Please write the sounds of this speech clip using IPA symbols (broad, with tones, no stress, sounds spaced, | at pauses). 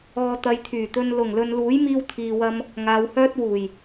ɔː˨ t̪ ɐ˨ j t̪ʰ yː˨˩ t̪ ɵ˧ n l ʊ˨˩ ŋ l ɵ˨ n l uː˨˥ j m iː˧ w t̪ʰ iː˨ w ɐ˧ m | ŋ aː˨˧ w h œː˥ t̚ w uː˨˩ j